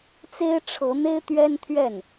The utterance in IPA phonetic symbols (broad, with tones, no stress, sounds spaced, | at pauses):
t͡s e˥ ɪ̯ ʈ͡ʂʰ ɤ˧˥ n̪ e˥ ɪ̯ t̪ ɥ ɛ˥ n t̪ʰ ɥ ɛ˥˩ n